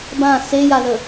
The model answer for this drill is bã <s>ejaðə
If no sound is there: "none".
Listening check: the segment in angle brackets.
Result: s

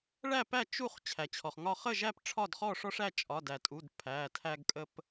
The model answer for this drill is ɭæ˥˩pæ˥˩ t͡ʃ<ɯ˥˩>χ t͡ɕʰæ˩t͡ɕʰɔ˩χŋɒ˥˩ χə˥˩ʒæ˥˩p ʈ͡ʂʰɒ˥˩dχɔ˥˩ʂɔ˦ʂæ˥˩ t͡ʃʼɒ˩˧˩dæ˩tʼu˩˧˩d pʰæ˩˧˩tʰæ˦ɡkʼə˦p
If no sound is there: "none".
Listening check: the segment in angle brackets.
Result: u˥˩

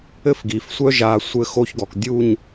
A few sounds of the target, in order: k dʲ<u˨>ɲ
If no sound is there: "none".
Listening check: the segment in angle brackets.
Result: u˦˨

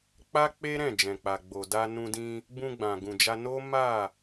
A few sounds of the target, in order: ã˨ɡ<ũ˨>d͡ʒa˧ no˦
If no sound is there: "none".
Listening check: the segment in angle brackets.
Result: ũ˨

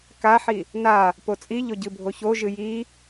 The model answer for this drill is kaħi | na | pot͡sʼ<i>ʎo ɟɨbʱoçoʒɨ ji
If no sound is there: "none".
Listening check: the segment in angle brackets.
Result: i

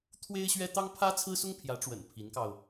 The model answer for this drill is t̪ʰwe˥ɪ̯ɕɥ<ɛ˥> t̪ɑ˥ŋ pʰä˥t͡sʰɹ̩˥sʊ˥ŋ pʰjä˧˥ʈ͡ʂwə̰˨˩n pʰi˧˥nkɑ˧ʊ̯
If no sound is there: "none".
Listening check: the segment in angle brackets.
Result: ɛ˥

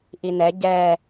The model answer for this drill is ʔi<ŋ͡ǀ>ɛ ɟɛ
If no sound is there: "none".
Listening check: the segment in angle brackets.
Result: n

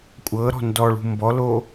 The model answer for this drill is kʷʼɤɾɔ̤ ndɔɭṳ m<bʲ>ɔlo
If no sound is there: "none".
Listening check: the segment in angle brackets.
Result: b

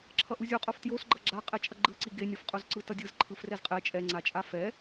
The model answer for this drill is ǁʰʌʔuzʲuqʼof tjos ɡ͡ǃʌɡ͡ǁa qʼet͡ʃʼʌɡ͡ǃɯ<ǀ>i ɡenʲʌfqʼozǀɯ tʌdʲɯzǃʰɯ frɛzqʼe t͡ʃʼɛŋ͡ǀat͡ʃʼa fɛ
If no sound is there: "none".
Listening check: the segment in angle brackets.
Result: ǀ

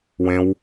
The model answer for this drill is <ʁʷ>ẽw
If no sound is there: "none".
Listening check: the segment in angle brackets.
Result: w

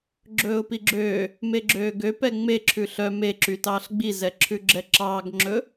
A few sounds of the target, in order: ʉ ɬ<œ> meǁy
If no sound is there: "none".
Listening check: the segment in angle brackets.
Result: œ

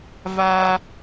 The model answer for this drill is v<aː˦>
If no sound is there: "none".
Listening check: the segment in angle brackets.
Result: aː˦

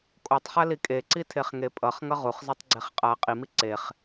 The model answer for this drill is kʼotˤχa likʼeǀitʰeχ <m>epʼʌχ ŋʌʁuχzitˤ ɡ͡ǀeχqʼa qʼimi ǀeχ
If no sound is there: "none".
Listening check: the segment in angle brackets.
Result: ŋ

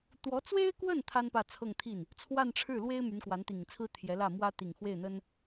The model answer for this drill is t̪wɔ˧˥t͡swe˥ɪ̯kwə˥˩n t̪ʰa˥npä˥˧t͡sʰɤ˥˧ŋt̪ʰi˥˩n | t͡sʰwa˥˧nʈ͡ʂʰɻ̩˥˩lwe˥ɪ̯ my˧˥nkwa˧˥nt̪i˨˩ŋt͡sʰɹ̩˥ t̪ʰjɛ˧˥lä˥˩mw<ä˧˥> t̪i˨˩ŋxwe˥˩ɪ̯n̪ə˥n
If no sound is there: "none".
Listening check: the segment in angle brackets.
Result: ä˥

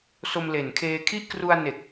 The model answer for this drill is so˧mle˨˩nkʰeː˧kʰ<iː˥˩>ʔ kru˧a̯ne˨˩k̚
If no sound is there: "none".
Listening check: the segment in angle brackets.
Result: i˥˩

